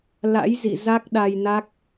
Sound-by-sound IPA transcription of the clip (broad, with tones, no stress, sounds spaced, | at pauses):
l a̰˧˥ j z ḭ˧˨ z a˦˥ k̚ ɗ a˧ j n a˦˥ k̚